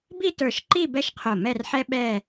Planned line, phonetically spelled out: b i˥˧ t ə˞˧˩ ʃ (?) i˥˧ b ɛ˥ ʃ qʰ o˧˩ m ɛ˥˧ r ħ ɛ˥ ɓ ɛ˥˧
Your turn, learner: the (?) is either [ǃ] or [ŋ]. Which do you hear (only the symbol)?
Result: ǃ